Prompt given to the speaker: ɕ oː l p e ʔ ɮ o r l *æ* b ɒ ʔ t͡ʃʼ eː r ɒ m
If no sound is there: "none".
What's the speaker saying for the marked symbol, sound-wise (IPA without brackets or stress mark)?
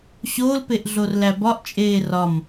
æ